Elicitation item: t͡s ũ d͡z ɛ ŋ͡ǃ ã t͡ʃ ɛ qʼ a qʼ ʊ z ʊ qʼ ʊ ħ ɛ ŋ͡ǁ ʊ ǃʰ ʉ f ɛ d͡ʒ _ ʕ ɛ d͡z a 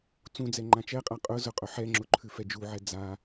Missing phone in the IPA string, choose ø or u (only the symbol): u